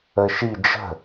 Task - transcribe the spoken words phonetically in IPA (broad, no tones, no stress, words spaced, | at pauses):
əʃi d͡ʒə̤